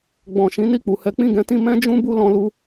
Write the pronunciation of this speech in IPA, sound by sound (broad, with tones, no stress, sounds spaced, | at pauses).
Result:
ɡ͡b ɔ̃˨ ʃ ĩ˨˦ n i˦˨ k͡p u˨ h ɛ˨˦ k͡p ĩ˦˨ ɡ ɛ̃˨˦ t ĩ˧ m ɛ̃˦ d͡ʒ ũ˦ b u˦ l ɔ̃˧ l u˦